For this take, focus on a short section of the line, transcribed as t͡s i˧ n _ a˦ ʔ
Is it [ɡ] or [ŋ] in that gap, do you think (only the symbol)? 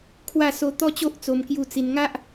ŋ